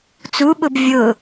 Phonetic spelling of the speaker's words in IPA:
t͡s u ɓ ʊ b vʲ ʊ

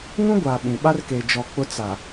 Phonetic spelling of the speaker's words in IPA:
ŋ ũ˦ ɡʷ aː˨ ɓ ĩ˨ ɓ a˦ r k eː˨ d͡ʒ ɔ˨ k͡p ʊ˦ t͡s a˨

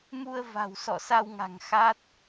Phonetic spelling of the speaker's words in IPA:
m u˧ ə̯ v a̤˨˩ w s ɔ̰˧˨ s a˧ w ŋ a̤˨˩ ŋ x a˦˥ t̚

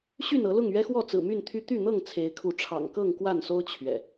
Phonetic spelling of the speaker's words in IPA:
ɕ y˥˨ n ɤ˨˦ l ʊ˥˨ ŋ ɥ ɛ˦ x w ɔ˥˨ t͡s ɹ̩˨˩ m y˥˨ n t̪ʰ y˦ t̪ y˥˨ n̪ ɤ˥˨ ŋ t͡sʰ e˨˦ ɪ̯ kʰ u˨˦ ʈ͡ʂʰ ɑ̰˨˩ ŋ k ɤ˥˨ ŋ k w a˥˨ n s o˦ ʊ̯ t͡ɕʰ ɥ ɛ̰˨˩

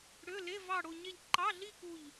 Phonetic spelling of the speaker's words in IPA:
ɽ ø˧˥˧ l e˧˥˧ v ɑ˥˧ ɽ o˥˧ ɲ e˥˧ ʎ ǃ ɑ˧˥˧ ɮ i˥˧ k u˥˧ ʎ

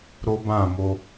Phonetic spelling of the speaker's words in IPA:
ɾ o˦ b ã˦˨ m o˧

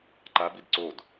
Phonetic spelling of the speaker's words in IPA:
ǃ a b i d ǀ o d

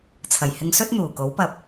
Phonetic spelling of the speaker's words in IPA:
t͡sʰ ɐ˨˩ j h ɪ˧ ŋ s ɵ˥ t̚ n̪ uː˨˩ k o˨˥ w p ɐ˧ p̚

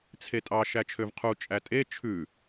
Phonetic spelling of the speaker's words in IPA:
t͡sʰ e tʼ ɑ ʃ æ t͡ʃʰ ø v qʰ u t͡ʃʼ æ tʼ e t͡ʃʰ ʉ

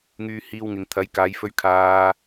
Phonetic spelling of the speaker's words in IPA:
ŋ yː˧ h iː˧ w ŋ ɪ˨ ŋ t̪ʰ ɐ˨˥ j k aː˨˧ j f ɵ˧ ɥ kʰ aː˨

